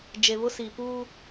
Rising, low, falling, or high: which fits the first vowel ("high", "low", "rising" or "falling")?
low